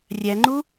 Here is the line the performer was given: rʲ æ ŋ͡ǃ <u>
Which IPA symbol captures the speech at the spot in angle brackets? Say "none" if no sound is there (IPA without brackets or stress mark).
u